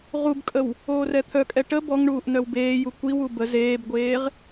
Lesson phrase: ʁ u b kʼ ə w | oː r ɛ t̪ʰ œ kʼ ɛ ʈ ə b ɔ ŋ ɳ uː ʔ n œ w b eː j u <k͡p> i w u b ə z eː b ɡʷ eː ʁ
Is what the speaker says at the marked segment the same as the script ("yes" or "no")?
no